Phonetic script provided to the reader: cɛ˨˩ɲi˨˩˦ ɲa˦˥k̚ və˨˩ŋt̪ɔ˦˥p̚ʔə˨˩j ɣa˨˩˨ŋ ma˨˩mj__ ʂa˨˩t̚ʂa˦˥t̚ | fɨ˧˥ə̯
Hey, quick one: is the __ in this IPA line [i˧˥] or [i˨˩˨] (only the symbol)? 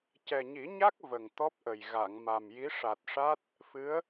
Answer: i˧˥